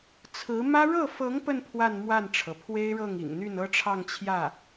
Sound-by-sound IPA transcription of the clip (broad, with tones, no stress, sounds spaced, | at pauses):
t͡sʰ ɹ̩˧˥ m ä˥ ɻ ɤ˥˩ f ɤ˧˥ ŋ p ə˥˧ n pʰ w a˥˧ n m w a˥˩ n ʈ͡ʂʰ ɤ˩ pʰ w e˥ ɪ̯ ɻ ɤ˥˩ ŋ ḭ˨˩ ŋ n̪ y˥˩ n ɤ˥ ʈ͡ʂʰ ɑ˥˧ ŋ t͡ɕʰ j ä˥˩